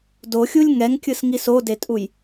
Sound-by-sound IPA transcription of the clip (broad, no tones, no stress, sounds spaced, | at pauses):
d o xʲ u lʲ ŋ ɛ ŋ kʲ ɯ s ŋ i s o d e tʼ u j